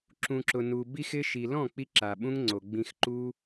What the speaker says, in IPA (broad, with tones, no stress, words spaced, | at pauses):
ǁũ˨ǁʊ˨ nu˨ bi˦xɪ˦ ʃi˨lɔ̃˦˨ k͡pi˦ǁa˨ɓũ˦ŋŋ͡ǀo˨ ɡ͡bĩ˧xǃu˦